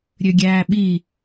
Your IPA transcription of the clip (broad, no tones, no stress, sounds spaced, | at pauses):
ɾʲ ø ɡʲ æː ɓ i